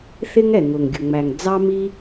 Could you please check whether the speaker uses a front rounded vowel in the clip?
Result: no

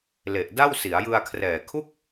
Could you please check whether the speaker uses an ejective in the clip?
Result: no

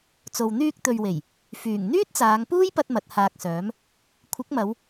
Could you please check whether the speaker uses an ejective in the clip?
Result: no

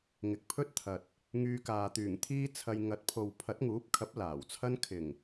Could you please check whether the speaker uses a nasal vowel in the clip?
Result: no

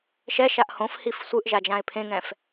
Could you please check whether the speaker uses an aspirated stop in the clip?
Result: yes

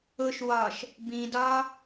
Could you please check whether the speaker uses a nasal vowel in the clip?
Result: yes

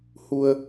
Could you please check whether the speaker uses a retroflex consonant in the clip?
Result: no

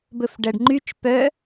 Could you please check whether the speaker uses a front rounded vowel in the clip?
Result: yes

